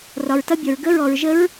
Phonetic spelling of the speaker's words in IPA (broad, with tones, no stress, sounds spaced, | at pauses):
r ɒ˧ ɹ t ʌ˦˥ bʲ ɒ˧ ɹ ɡ ə˦˥ ɹ ɔ˧ ɹ ʒ ə˦˥ ɹ